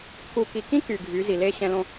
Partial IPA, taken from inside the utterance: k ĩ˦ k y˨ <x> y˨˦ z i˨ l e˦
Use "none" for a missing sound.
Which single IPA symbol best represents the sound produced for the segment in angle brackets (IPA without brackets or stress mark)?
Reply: ɡʱ